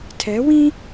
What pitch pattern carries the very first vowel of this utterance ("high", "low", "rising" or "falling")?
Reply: rising